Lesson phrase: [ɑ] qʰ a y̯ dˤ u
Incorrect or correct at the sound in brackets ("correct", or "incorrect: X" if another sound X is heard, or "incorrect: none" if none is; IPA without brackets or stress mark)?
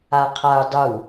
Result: incorrect: a